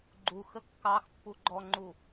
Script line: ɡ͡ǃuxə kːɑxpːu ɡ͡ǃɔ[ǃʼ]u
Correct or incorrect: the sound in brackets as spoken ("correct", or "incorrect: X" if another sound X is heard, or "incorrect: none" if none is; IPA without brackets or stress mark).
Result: incorrect: ŋ͡ǃ